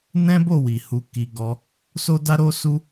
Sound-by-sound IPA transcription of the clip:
n ɛ̃˦ b o˦˨ w i˨ h u˧ k i˧ ɡ ɔ˧ | s o˦ d a˦ ɾ o˦ s u˦

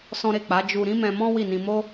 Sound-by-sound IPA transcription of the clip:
s ɔ̃˦ ɾ e˦˨ k͡p a˨˦ d͡ʒ u˧ ɾ ĩ˦ m ɛ̃˧ m ɔ̃˦ w i˦˨ n ĩ˧ m o˦

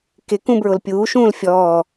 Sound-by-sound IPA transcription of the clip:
k ɪ k ũ b ɹ ʊ l pʲ uː ʃ ũː l fʲ ɔː

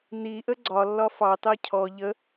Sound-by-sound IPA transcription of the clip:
n i ʔ ə ɡ͡ǀ ɒ lː ɒ f ɑ t ɑ cʰ ɔ ʎ ə

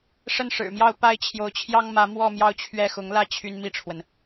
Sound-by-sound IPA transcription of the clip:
ʂ ə˥˩ n ʂ ɻ̩˨˩ m j ɑ˥˧ ʊ̯ p a˥˩ ɪ̯ t͡ɕʰ j o˧˥ ʊ̯ t͡ɕʰ j ɑ˥ ŋ m ä˧˥ m w ɔ˥˧ m j ɑ˥˧ ʊ̯ t͡ɕʰ ɥ ɛ˥˩ x ʊ˧˥ ŋ l ä˥˩ t͡ɕʰ y˥ n m i˥˩ ʈ͡ʂʰ w ə˩ n

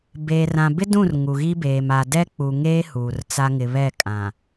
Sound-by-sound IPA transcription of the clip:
b eː˨ r ã˨ b ɪ˦ d ũ˦˨ r ŋ u˨ ɣ i˦ b eː˨ m a˨ d ɛ˦ k͡p u˨ ŋ eː˦ h uː˨ r t͡s a˦ ŋ ɪ˨ β ɛ˦˨ kʼ ã˨

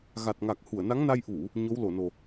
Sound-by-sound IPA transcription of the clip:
ɣ a˨˩ t̚ ŋ a˨˩ k̚ h u˧˩ ə̯ n a˨˦ ŋ n a˧ j ʔ u˧˩˨ | ɲ o˨˦ w l o˧˩ n o˨˩

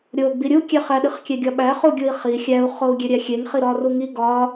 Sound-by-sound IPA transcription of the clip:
ɾʲ o ɡ͡b i ɾʲ u kʲ e χ æ ɗ i χ kʲ e ɡʲ ɒ ɓ æ χ u ɡʲ u i̯ χ i xʲ æ u̯ χ o u̯ ɡʲ e ɾʲ æ xʲ e ŋ χ i ɾ ɒ r u ŋ i ɡ ɒ

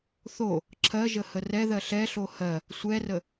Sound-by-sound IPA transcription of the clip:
θ o | ǁʰ ɜ ʒ ə h ə r ɛ ð ɜ ɬ ɛ ɬ o h ɜ | sʷ ɛ r ə

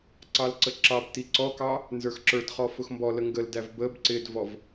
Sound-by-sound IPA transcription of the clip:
ǀ ɑ l ǀ ə ǁ ɑ b t i ǀ ɔ k ɑ | n z ə˞ x ǁ ə˞ d χ ɔ f ʊ x m b ɔ l ə ŋ ɡ ə l d æ v b ə b ǀ ɪ d v ɔ v

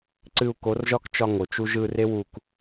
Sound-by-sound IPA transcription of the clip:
ǀ ɨ˧ u̯ k o˨˦ r ʒ ɒ˦ k t͡ʃ ɒ˧ ŋ o˨ t͡ʃ u˦ ʒ ɯ˧ r e˦ w u˧ k

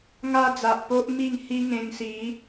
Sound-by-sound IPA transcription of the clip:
ŋ a˦ d͡z a˨ ʔ p o˦ ʔ m i˥˧ ŋ h i˦ ŋ ẽ˧ ŋ s i˨˦

